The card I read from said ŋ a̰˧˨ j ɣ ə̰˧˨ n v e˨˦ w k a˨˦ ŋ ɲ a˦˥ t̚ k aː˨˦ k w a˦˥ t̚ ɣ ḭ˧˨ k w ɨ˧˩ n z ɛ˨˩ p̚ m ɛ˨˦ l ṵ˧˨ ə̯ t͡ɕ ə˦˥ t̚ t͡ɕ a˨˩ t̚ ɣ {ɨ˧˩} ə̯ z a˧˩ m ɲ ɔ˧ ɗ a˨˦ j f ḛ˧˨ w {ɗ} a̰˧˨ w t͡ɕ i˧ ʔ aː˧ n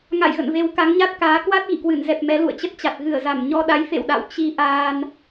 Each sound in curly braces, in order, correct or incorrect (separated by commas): correct, correct